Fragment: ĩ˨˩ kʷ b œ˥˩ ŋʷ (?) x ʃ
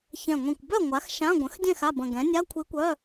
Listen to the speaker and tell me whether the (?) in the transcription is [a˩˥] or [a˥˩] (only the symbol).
a˩˥